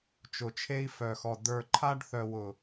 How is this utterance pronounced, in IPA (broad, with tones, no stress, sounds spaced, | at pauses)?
t͡ʃ ʊ˨ t͡ʃʰ e˦ i̯ f œ˨ x ɔ˨ d ə˞˨ ǃʰ a˦ ɖ θ œ˨ w ʊ˨